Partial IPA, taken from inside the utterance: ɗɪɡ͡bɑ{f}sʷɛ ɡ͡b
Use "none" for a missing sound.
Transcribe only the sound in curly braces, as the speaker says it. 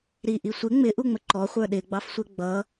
f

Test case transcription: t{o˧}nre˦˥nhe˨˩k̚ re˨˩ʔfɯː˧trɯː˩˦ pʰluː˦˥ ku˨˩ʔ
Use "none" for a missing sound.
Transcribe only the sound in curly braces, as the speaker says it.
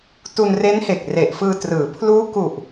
u˧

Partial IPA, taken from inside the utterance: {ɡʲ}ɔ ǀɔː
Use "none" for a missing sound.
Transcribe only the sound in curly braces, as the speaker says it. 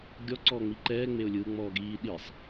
ɡʲ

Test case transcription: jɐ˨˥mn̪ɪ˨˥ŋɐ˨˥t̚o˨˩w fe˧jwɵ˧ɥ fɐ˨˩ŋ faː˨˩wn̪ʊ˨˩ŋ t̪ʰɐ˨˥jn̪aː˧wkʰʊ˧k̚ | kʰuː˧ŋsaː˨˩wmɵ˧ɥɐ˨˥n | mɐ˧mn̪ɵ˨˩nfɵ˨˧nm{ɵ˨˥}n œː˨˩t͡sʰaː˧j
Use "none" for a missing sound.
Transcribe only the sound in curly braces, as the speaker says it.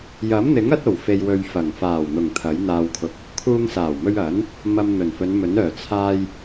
ɵ˨˥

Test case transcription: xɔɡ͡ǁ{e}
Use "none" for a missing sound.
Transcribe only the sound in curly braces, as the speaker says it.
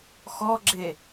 e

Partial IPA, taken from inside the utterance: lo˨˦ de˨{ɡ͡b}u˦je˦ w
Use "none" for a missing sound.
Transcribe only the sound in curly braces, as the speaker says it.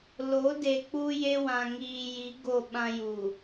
k͡p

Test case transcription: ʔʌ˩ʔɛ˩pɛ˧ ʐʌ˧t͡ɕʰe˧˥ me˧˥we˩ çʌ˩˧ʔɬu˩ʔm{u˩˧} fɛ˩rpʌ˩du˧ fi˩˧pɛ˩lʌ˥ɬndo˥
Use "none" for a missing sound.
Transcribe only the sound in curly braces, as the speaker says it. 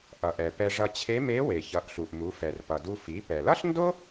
u˩˧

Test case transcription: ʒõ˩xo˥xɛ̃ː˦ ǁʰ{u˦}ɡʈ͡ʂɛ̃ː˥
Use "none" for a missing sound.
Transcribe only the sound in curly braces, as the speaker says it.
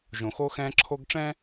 o˦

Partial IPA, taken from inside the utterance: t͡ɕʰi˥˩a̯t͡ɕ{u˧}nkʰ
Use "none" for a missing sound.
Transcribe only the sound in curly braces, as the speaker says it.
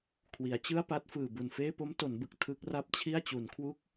u˩˦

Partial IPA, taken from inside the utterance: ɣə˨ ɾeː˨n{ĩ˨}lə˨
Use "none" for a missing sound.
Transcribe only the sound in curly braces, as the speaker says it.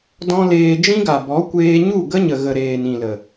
ĩ˨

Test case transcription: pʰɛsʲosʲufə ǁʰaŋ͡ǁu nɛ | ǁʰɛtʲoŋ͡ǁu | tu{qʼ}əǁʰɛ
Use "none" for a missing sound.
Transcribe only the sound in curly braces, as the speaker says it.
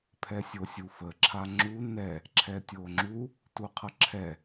qʰ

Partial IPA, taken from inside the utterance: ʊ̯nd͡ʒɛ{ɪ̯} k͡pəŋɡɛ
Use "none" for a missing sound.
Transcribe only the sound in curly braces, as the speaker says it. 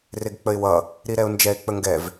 ɪ̯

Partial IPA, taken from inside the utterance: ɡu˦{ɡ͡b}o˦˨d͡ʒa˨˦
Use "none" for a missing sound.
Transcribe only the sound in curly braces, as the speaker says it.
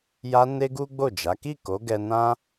ɡ͡b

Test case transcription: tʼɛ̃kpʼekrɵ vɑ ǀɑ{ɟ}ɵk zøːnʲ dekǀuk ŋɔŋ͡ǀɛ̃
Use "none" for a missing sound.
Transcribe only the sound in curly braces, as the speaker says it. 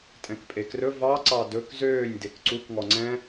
d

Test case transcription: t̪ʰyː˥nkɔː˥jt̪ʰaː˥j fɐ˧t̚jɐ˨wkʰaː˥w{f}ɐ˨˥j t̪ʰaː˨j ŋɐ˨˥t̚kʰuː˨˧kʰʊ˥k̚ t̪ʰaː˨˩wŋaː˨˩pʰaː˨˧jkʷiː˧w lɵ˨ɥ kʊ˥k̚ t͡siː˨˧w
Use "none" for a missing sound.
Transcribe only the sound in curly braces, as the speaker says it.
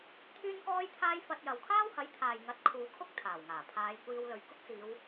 h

